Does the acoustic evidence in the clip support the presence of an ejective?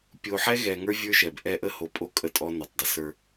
yes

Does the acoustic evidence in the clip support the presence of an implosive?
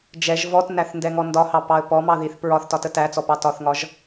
no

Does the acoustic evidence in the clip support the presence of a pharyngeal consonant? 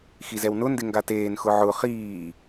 yes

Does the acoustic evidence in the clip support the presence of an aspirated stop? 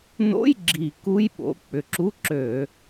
no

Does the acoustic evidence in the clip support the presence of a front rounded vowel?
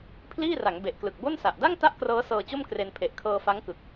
no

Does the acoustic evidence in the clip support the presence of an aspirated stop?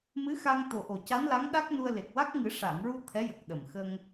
yes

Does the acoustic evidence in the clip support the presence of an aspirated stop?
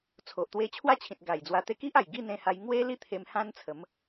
yes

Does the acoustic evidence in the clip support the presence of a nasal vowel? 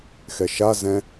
yes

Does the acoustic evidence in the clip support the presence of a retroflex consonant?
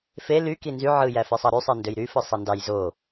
no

